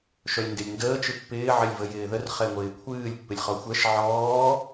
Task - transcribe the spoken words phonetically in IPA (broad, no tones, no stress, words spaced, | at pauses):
ʃœlʲndɪlʲndəː t͡ʃɨpːɪː ʕɪlʲvəjɪːðər χɛŋʷɪːkʷʰɨːlʲ pːɪlʲχɔxʷɛʃ ʕɔː